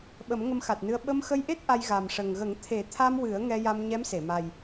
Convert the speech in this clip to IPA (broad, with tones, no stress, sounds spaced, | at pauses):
ɓ ə˨˩˦ m ŋ ə˧ m x a˨˩ t̚ n ɨ˧ ə̯ ɓ ə˧ m x ə˧ j ʔ e˦˥ t̚ ʔ a˧ j ɣ a˨˩ m ʂ ə˨˩ ŋ ɣ ə˨˩˦ ŋ t̪ʰ e˨˩˦ t̪ʰ a˧ m w ɨ˨˩˦ ə̯ ŋ ɛ˧ j a˧ m ɲ ɛ˧˥ m s e˨˩˨ m a˨˩ j